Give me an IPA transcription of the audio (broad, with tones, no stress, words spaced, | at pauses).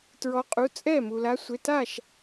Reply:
tɹɔ˨˦qʼu˩˧˩t͡sʼɛ˥˩mu˩ la˨˦sʷe˩˧˩ta˥˩ʃ